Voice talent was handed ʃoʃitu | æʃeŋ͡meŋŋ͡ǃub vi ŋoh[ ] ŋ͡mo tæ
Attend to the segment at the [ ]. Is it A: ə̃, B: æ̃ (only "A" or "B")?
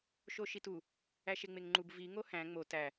B